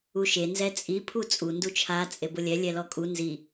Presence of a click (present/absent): absent